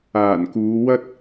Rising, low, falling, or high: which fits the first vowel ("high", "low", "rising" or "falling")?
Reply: low